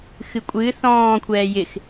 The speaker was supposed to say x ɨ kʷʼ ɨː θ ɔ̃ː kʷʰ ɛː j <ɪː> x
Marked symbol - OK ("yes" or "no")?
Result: no